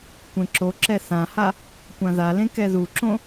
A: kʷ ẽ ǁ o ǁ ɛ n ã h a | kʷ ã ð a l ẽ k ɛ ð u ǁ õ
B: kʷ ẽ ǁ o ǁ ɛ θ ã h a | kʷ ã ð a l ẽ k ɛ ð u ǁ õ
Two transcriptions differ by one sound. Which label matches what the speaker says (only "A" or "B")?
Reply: B